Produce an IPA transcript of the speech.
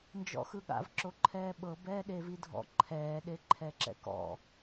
n d͡ʒ ɔ̰ x ɯ ɠ a̰ v ǁ o ǃʰ ɛː ɓ ɤ b ɛː ɗ e v i dʱ ɔ̰ ǃʰ ɛː ɗ e ǃʰ ɛ ǁ ɛ̰ k ɔ̰

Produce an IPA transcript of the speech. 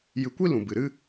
j ɨ˧ kʷ i˦ l ũ˨ b ɨ˨ ɾ ɨ˦

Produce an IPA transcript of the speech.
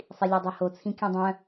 sˤ i lʲ œ dˤ œ h o t͡sʰ ĩ kʲ œ̃ dˤ œ̃

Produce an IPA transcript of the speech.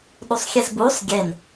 ɗ u sˤ xʲ e z b uː sˤ ɡʲ e n

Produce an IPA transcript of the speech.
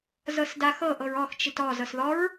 z ɤ s d a x ɤ ʔ ɤ ɹ ɔ x t͡ʃ i t ɔ z ɤ s ð ɔ ɹ

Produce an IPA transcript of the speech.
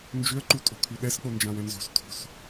n d͡ʒ ʏ ə̯ ǃ u tʼ o̤ kʰ ʉ ɗ ɛ s k͡p o n d͡ʒ ã w ɛ̃ n z o̤ s tʰ o̤ s

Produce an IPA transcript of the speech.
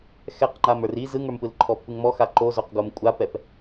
x ɛ q ŋ͡ǃ a m ə˞ r i z ɯ ŋ ə˞ m p ɯ l ǃʰ ɔ pː ɯ ŋ m ɔ x a ǃ o z o q ɡ o m kʷʼ a p ɛ p

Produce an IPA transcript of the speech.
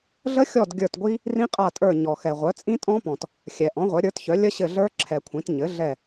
ɮ ə˦˥ xʲ ɔ˦˨ d ɡʲ ə˞˦˨ t ɡʷ i˦˥ | r ĩ˦˥ qʼ a˦˨ tʼ ə˞˦˨ ɲ ɔ˨ x ɛ˨ ʁʷ œ˩˥ t͡sʼ ĩ˦˥ tʼ ɔ̃˦˥ p ɔ̃˨ t | xʲ ɛ˨ ʔ ɔ̃˩˥ ʁʷ œ˩˥ ɾʲ ə˞˩˥ t ç œ˩˥ lʲ ə˦˥ ɕ ɘ˦˨ ɮ ə˞˦˥ ǁʰ ɛ˨ kʷʰ ĩ˩˥ t ɲ ɘ˩˥ ɮ ɛ˦˨

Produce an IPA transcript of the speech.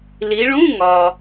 l i˩˧ ɭ ũ˧˥˧ ŋ ɒ˩

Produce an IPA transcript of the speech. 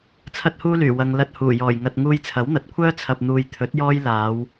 t͡sʰ ɐ˥ t̚ h uː˥ l yː˨˩ w ɐ˧ ŋ l ɐ˧ t̚ h uː˨˩ j ɔː˨˩ j ŋ ɐ˨ t̚ ŋ uː˧ j t͡sʰ ɐ˨˥ w n̪ ɐ˨˥ t̚ kʷʰ œː˥ t͡sʰ ɐ˨ p̚ n̪ uː˨ j t̪ʰ ɵ˨˥ t̚ j ɔː˥ j l aː˨˧ w

